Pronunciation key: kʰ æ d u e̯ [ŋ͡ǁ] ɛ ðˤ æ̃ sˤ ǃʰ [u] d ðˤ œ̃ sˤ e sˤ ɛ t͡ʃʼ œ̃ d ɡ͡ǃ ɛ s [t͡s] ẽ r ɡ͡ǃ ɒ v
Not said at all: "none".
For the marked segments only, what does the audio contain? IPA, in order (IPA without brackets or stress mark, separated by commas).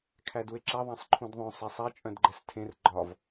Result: ǁ, ũ, tʰ